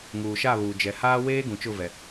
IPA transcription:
ŋ uː˨ ʃ a˦˨ β uː˨ d͡ʒ ɛ˨ h aː˦ w eː˦ ɡ ũ˨ t͡ʃ ʊ˦˨ v ɛ˨

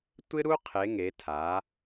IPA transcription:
tʷ ɪ˦ ɾ u˦ qʰ e˩˧ ŋ e˩˧ tʰ a˩˧

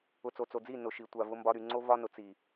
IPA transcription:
ʊ˨ t͡s o˨ t͡s o˨ d͡z i˦˨ n ʊ˨ ʃ i˨ tʷ a˨ v ʊ˦ m b ɒ˦ ɾ y˨ ŋ͡ǀ o˦ v ɒ˦ n ʊ˨ t͡s i˨

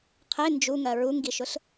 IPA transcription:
qʰ e n d͡ʒ u ŋ ɜ ɹ u ŋ ɡ i ʃ ʊ ɬ

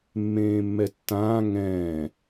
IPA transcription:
mː ẽː mː ɛ tː ãː ŋ ɛ̃ː

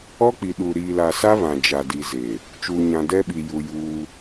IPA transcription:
ɔ˦ k͡p i˨ ɗ u˨ ɾ iː˨ l a˨ s a˦ β ã˨ d͡ʒ a˨ d i˨ z e˨ | t͡ʃ uː˨ ɲ ã˨ d ɛ˦ ɓ i˨ j u˨ j uː˦

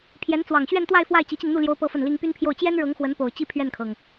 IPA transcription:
pʰ j ɛ˧˥ n t͡s w ɑ˨˩ ŋ ɕ ɥ ɛ˥˧ n t̪ w a˥˧ ɪ̯ f w a˥˩ ɪ̯ t͡ɕ i˧˥ t͡ɕ i˧ ŋ n̪ u˥˩ l j o˥ ʊ̯ p ɤ˥ f ə˥˩ n l i˥ ŋ p y˥ n pʰ j o˥˩ ʊ̯ t͡ɕ j ɛ˥ n ɻ ɤ˧˥ ŋ x w ə˧˥ n p o˨˩ ʊ̯ t͡ɕ i˥˧ pʰ ɥ ɛ˥˩ n kʰ ɤ˩ ŋ

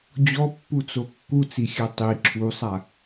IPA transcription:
d͡ʑ ɔ pː u t͡s o kː u t͡s i xʲ ɛ tˤ i ǁʰ u sˤ a

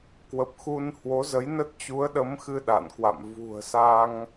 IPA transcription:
k w ə˨˩ p̚ x u˧ n h w o˨˦ z ə˨˦ j n ə˦˥ t̚ t͡ɕ u˨˦ ə̯ ɗ ə˨˦ m x ɨ˧ ɗ a̰˧˨ n k w a̰˧˨ m v ṳ˨˩ ə̯ s a˧ ŋ

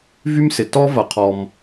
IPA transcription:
v y˥ m s ɪ˩ t ɔ˥ v ɐ˩ qʰ ɔ˩ m

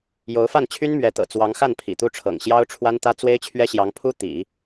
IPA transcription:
j o˧˥ ʊ̯ f a˥˩ n t͡ɕʰ y˥ n m ɥ ɛ˧˥ t̪ ɤ̰˨˩ t͡s w ɑ˧˥ ŋ x a˥˩ n pʰ ḭ˨˩ t̪ u˥˩ ʈ͡ʂʰ ɤ̰˨˩ ŋ ɕ j ɑ˥ ʊ̯ ʈ͡ʂʰ w a˥ n t̪ ä˥ t͡s w e˥ ɪ̯ t͡ɕʰ ɥ ɛ˥ ɕ j ɑ˧˥ ŋ pʰ u˥ t̪ ḭ˨˩˦

